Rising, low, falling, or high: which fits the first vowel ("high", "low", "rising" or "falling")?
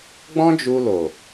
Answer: high